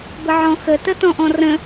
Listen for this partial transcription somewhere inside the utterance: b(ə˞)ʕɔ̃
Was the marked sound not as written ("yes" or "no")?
yes